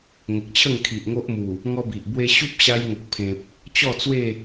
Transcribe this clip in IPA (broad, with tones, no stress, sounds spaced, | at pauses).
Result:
ŋ ə˨ k̚ t͡ɕʰ ə˥˧ ŋ kʰ i˨ ʔ ŋ o˦ ʔ m u˨˩ | ŋ ɔ˦ b i˨ ʔ b w e˧ ɕ u˦ p̚ ɕ a˧ j ŋ ə˨ k̚ pʰ ẽ˨ p̚ | t͡ɕ ɔ˥˧ t͡s w e˥˧